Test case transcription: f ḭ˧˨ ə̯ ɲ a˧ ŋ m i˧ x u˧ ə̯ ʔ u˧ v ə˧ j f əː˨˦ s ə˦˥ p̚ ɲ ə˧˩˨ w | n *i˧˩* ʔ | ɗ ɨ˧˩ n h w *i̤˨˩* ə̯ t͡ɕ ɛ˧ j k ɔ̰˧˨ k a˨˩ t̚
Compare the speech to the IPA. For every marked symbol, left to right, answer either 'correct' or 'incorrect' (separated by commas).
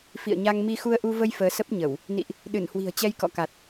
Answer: incorrect, correct